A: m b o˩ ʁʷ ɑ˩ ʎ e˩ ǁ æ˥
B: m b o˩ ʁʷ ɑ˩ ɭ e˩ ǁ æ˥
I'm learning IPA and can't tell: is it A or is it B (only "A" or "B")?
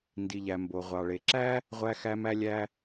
B